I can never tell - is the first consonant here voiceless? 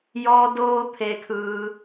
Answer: no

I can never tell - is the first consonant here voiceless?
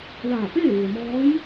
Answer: no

